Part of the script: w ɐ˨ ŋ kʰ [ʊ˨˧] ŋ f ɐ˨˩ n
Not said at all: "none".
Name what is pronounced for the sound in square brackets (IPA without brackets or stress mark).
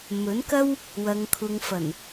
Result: ʊ˨